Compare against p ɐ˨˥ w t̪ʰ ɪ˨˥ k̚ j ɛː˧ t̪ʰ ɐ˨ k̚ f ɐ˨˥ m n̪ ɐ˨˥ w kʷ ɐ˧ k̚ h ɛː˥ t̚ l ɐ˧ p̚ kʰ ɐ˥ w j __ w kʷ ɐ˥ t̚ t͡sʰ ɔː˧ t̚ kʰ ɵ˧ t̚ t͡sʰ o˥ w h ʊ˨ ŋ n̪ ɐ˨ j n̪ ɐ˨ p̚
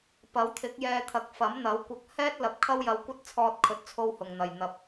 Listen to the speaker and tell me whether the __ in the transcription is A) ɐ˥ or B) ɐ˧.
B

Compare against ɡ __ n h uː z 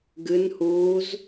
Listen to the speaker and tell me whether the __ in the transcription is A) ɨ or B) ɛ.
A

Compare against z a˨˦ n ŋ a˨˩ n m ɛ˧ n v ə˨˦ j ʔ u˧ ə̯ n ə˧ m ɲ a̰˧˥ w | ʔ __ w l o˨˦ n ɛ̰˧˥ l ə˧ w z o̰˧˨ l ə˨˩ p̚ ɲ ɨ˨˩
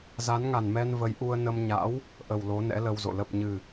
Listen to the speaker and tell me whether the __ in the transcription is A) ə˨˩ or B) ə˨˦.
A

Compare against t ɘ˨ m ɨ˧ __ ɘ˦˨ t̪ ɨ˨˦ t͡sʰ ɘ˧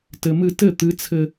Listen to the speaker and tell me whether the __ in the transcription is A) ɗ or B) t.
B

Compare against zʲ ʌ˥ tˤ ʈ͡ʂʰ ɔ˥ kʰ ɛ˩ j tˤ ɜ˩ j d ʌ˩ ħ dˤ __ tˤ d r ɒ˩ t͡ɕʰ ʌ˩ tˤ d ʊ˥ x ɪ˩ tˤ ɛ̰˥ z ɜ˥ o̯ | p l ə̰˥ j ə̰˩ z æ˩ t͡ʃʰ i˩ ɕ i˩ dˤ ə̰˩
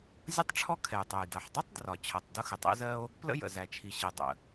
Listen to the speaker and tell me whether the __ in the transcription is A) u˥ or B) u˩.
A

